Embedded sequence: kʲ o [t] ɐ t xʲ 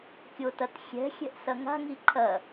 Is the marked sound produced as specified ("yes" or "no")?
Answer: yes